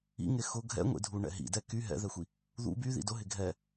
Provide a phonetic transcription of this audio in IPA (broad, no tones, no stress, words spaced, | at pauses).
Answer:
ḭŋe xʊ ɡʱɛ̰ŋʷḛdʱuɳɛ̰ ɦḭdɛ ky ɦɛ̰ðɛxʷi | ðṵ byðḭ dʊɦɪ ɡʱɛ